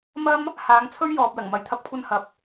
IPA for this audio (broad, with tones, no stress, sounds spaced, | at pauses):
m ɐ˥ m | h aː˨˧ ŋ t͡sʰ ɵ˥ ɥ j ɔː˨ p̚ l ɐ˨˩ ŋ m ɐ˨˥ j t̪ʰ ɐ˧ p̚ kʷʰ ɐ˧ n h ɐ˨ p̚